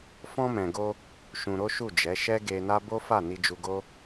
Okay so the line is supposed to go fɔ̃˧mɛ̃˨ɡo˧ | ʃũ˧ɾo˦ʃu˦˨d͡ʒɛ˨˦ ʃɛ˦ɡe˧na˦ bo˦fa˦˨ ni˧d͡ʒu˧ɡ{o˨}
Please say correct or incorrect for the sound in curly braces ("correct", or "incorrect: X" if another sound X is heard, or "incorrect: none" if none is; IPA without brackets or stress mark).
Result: incorrect: o˦